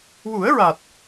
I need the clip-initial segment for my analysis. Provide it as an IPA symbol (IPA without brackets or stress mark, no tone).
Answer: w